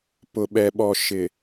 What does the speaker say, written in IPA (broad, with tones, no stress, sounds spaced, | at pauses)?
p ʊ˨ ɓ ɛ˨ ɓ ɔ˨ ʃ ɪ˨